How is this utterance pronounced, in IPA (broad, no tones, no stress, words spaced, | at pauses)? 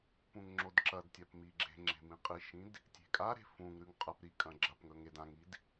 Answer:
pũŋŋ͡ǁodǁɐdtʲap miɡ͡ǁe̤ŋ͡ǁe̤ mĩqʼiʃĩd | tʲe̤kʼaɾe̤ fũŋɾʉŋ qʼɐp ɾikʼɐ̃ ɡ͡ǁɐpŋɵ ŋed ãŋid